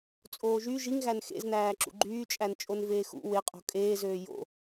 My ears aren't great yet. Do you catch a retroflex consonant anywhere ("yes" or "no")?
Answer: no